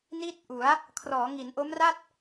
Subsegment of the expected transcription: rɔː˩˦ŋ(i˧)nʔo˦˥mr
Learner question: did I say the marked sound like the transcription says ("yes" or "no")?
no